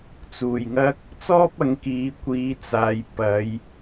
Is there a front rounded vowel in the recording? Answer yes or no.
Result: no